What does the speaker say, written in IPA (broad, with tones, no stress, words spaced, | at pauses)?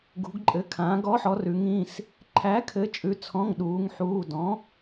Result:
ɡṳ˩˧ɡǃʼɘ˩˧kʰãː˩˧ɡ ɔ˩˥ħɔ˩˧ rʉ˩˧ŋ ĩ˩˧˩s | ǃʰæ˩˥kʰɘ˩˥ t͡ʃʼʉ˩˧t͡sʰɔ̃˩˧˩ŋ ɗuː˩˧ŋħuː˩˧˩ dɔ̃˩˥